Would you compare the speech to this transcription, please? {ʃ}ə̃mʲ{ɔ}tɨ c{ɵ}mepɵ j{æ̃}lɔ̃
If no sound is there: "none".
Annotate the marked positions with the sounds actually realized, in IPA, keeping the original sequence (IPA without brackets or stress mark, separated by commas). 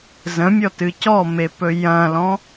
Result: z, ɔ, ɔ, ɐ̃